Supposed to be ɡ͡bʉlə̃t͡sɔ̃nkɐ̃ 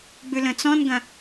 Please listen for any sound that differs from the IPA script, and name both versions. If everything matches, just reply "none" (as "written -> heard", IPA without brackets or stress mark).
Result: k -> ɡ